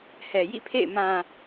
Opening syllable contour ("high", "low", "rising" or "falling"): low